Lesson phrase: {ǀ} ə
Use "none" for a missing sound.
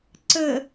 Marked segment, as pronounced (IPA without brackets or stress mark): ǀ